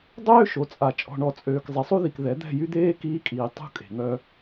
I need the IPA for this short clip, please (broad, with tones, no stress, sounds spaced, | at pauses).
dˤ øː˦ ʃ o˨ t͡sʼ a˨ t͡ʃʼ ɔ̤˨ ɳ ɔ˨ t͡sʼ øː˨ k zˤ i˨ sˤ u˦ ð i˨ k ð ɛ˨˦ d̪ ɛ̤˦˨ j y˦ d̪ eː˦ k iː˦ kʼ iː˨ tˤ ṳ˦ kʼ e̤˨ ŋ œ˦